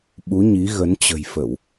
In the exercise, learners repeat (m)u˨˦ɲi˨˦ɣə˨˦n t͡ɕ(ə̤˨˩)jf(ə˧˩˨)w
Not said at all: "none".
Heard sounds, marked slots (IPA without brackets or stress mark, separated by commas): ɓ, ə̤˨˩, ə˧˩˨